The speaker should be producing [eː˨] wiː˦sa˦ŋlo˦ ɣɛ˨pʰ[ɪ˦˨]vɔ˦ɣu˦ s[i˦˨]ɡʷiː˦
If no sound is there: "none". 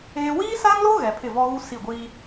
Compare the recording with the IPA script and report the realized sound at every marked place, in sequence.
eː˦, ɪ˦˨, i˦˨

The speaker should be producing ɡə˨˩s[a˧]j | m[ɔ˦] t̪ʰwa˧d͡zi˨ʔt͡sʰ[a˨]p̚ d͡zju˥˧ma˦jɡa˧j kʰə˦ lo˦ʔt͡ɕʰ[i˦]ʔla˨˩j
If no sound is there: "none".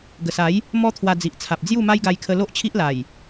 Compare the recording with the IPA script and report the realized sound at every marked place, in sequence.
a˨˦, ɔ˦, a˨, i˦

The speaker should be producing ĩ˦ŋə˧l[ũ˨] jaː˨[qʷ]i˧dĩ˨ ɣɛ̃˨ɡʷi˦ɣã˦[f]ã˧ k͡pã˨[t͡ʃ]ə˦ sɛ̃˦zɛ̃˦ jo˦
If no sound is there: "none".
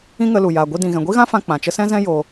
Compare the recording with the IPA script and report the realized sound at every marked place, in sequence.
u˨, ɡʷ, f, t͡ʃ

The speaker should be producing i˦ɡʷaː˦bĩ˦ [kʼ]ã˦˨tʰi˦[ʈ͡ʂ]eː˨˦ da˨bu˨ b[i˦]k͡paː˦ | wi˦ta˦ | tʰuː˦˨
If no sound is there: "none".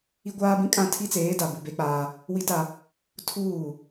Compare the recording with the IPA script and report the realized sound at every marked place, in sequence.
kʼ, t͡s, e˦

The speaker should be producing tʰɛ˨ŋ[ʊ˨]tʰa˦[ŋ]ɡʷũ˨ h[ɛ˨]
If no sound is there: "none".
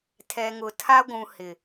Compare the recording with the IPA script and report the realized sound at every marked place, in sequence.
ʊ˨, none, ɪ˨

